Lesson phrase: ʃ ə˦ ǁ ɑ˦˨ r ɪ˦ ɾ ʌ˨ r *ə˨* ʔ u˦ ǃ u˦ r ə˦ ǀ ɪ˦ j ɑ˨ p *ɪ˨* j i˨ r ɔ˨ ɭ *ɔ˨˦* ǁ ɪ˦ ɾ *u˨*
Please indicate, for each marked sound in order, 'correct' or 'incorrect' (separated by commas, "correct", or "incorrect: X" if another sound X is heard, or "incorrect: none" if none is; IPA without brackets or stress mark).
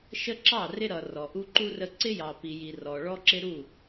incorrect: ɔ˨, incorrect: i˨, incorrect: ɔ˦, incorrect: u˦˨